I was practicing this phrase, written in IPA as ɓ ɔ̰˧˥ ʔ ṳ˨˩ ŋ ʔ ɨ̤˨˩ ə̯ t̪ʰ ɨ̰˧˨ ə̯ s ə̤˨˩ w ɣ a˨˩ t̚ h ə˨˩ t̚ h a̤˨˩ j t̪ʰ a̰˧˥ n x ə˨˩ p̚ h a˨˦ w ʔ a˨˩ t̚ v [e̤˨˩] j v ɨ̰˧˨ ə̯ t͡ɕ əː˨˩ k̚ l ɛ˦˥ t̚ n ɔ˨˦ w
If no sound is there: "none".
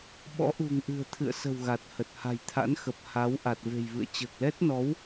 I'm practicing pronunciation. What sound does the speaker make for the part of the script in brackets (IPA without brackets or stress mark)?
e̤˨˩